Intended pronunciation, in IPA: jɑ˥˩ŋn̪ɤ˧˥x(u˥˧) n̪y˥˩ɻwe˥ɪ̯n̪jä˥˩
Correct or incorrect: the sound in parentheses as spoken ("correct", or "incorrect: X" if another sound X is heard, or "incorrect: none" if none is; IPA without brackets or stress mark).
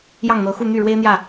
correct